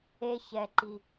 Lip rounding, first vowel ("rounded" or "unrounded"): unrounded